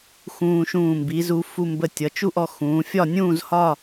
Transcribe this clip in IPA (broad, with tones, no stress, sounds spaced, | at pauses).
x ũː˧ ʃ ũː˧˩ m b i˩˧ z u˩˧ f u˧ m b ə˧˩ tʲ ʌ˩˧ t͡ʃ u˥˧ ʔ ɔ˧ x ũː˩˧ fʲ ɒ˥˧ nʲ ũː˥˧ z h ɒ˥˧